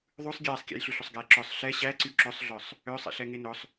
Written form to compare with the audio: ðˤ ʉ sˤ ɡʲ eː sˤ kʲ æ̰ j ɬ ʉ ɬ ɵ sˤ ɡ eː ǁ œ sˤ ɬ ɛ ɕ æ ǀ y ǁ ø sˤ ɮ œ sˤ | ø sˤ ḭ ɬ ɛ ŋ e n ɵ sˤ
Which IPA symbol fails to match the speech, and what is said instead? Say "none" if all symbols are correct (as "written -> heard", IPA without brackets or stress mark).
none